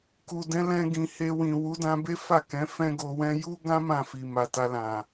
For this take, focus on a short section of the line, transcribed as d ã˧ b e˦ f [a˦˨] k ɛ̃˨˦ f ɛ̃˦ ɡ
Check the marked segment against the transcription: correct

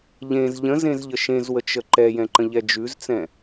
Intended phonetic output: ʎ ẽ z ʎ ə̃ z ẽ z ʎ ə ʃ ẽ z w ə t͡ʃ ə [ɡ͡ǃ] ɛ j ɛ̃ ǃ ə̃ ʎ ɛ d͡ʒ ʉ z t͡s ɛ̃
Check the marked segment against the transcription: incorrect: ǃ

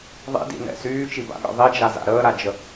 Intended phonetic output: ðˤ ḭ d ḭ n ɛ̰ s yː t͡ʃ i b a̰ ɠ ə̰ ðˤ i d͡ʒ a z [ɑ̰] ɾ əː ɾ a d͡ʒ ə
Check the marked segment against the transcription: incorrect: a̰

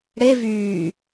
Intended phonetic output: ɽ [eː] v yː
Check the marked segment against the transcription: incorrect: e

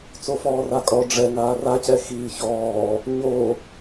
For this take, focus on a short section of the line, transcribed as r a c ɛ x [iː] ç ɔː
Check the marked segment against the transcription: correct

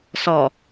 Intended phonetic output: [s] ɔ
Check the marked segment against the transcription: correct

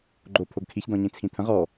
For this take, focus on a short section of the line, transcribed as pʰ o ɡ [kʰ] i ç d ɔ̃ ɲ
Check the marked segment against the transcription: correct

